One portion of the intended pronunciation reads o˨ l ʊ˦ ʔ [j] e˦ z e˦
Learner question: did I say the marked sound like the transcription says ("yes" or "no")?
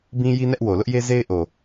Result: yes